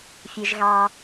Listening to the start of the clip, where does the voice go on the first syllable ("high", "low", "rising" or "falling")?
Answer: low